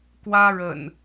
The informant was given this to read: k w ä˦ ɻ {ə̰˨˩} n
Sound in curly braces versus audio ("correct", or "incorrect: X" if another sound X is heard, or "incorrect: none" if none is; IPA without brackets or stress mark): correct